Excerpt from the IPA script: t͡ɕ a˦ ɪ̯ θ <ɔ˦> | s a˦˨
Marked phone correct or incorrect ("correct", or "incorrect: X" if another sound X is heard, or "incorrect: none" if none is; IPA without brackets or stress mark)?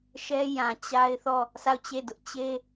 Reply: incorrect: ɔ˦˨